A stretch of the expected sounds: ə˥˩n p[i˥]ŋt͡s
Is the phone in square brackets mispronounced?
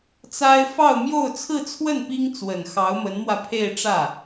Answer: no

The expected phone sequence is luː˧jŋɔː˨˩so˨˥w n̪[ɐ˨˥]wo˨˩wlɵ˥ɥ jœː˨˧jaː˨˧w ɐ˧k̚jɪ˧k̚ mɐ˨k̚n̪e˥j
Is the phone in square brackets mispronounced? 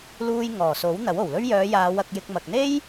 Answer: no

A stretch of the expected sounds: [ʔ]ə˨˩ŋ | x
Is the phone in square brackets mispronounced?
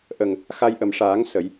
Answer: no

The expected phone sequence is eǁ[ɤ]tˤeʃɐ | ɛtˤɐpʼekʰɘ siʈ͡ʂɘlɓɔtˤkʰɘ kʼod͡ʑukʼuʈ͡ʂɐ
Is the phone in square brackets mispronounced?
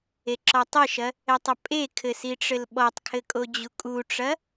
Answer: yes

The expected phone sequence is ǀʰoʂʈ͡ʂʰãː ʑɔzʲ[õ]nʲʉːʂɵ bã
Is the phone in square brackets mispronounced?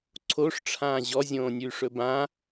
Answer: yes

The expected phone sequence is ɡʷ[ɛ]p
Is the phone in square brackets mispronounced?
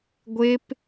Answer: yes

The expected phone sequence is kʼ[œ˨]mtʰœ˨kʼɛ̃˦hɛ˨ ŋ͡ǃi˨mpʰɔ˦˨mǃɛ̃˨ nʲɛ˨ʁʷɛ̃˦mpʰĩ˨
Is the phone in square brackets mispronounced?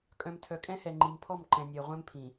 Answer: yes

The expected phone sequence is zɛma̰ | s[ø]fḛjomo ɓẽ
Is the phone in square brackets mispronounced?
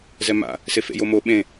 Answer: yes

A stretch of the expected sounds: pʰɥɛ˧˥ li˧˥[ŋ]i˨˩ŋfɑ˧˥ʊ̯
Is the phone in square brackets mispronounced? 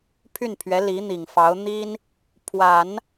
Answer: yes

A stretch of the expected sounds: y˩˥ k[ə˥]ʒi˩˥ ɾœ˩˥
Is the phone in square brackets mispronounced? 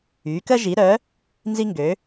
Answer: no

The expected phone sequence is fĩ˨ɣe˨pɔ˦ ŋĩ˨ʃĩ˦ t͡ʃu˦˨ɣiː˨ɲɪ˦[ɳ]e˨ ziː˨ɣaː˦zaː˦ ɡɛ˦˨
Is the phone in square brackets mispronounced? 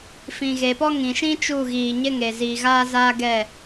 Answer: yes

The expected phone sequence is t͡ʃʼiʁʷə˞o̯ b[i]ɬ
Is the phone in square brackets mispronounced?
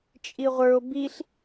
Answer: no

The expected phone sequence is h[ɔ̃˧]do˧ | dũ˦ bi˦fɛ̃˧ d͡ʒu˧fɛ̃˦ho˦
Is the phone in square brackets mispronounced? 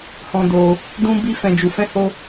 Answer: no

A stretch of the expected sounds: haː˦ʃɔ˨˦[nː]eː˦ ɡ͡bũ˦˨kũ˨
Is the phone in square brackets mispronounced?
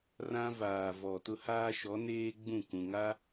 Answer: yes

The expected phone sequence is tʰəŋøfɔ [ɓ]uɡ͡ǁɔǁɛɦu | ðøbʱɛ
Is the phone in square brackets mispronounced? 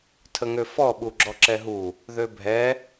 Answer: no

